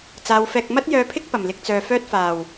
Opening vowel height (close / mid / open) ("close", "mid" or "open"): open